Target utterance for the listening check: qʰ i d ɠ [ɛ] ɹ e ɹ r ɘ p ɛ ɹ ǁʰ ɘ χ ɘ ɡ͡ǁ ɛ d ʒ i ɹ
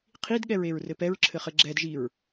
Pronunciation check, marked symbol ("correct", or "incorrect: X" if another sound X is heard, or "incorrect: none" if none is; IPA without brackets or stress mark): correct